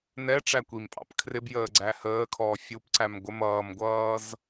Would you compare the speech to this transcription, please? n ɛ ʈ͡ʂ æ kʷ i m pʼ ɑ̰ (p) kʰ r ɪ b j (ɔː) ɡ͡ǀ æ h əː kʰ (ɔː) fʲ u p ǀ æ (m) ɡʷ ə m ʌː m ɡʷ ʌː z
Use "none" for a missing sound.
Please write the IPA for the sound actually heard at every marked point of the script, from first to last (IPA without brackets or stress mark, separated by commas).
p, əː, ɔː, m